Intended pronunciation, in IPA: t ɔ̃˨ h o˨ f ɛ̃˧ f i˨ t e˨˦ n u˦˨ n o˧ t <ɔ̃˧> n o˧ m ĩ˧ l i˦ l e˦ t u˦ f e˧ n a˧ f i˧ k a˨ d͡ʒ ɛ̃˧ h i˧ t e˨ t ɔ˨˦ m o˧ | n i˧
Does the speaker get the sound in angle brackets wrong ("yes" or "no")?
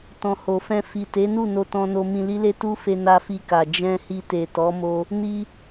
no